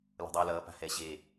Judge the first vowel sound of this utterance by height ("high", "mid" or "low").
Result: mid